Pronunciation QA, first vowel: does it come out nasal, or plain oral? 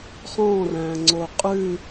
nasal